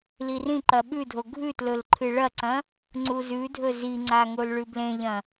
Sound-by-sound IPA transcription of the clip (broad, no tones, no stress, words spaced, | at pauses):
lirĩǃɐ ɓʉdʱo ɡʱʉtlɵl ǃʰɨɭɐǀɐ̃ | ŋ͡ǀuzʉdʱɵ ziŋ͡ǀa ŋolɭʉblẽʎɐ̃